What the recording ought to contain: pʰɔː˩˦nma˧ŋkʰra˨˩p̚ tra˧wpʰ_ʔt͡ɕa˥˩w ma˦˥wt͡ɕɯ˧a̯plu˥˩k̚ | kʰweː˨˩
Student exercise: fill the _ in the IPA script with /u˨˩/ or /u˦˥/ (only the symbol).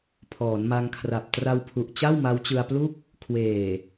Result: u˨˩